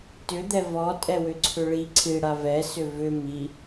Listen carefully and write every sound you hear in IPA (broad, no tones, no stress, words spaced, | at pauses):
tʏ d̪ɛvɔ tʼɛwʏǀʰʏɭi ǀʰi ɽavɛ sʏvʏ mi